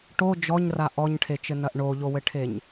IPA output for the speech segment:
ʈo d͡ʒɔɲra ʔɔɲʈʰet͡ʃɘnɐʔ ɳoʎowɘʈʰeɲ

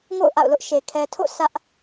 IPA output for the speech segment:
ŋo̰˦˨ʊ̯ʔa̰˦˨ʊ̯lʊ˦ʔʃe˨ kʰɛ˨tʰo̰˦˨ sʰä˦ʔ

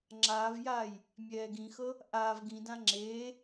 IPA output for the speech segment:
ŋ͡ǁaːvjaːj | mʲɛːɡĩxɤ | ʔaːv ɡĩdã ŋ͡ǁeː

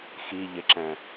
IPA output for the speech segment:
xi ʎɪǁɛ̃

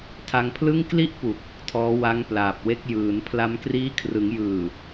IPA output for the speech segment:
tʰa˧ŋpʰlɯ˥˩ŋ kli˥˩ʔpu˨˩k̚ | tʰɔː˦˥wa˦˥ŋ plaː˨˩p̚we˦˥k̚ jɯː˩˦n pʰla˧mkriː˦˥ kʰrɯ˩˦ŋjɯː˨˩

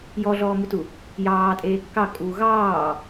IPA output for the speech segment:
jɔɮɔːmutu | jɑːtʼeː kːɑ kʼuːɣɑː

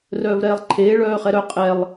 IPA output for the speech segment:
rœːvɾɛːlˠǃʰeː ɭœːχɛɾœ qʼɛlˠ

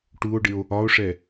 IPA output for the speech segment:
ʈuo̯ɖɪo̯ | ɒo̯ʂɛ

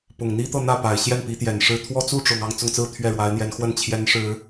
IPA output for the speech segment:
pʊ˨˩ŋn̪i˥ t̪ɤ˥˧n̪ä˥˩pa˨˩ɪ̯ ɕjɛ˥˩npi˧˥t̪jɛ˨˩nʂɻ̩˥ t̪ʰwɔ˥t͡su˥˩ʈ͡ʂʊ˨˩ŋ ɑ˥˧ŋt͡sʊ˥˧ŋt͡sɹ̩˥˧ t̪ʰɥɛ˥˩ɻwa˧˥ɪ̯n̪jɛ˧˥nxwə˥˩n t͡ɕʰjɛ˧˥nʂɻ̩˨˩˦

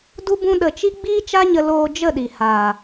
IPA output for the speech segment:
du˦bũ˦ɗə˧t͡ʃi˦ ɡ͡biː˦t͡ʃa˦ɲə˧ loː˧ d͡ʒə˦˨ɗi˨haː˨

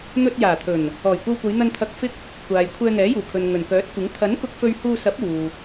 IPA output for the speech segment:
n̪ɵ˧t̚jaː˨˩t̪ʰɵ˨˩n | ɔː˨˩jkʷɐ˧wkʷɐ˨˧jn̪ɐ˧n t̪ʰɐ˧k̚fɪ˥k̚ | kʷaː˨j kʷʰɛː˧ŋɛː˨˥juː˨˩kʰɵ˨n ŋɵ˨˩nkœː˨˥t̚kʷɪ˨˥ŋ t̪ʰɐ˨˥n kʊ˧k̚fɵ˧ɥhuː˧sɐ˨˥p̚ uː˨

